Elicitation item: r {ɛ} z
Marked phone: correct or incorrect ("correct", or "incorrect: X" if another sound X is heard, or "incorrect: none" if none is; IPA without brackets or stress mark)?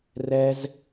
correct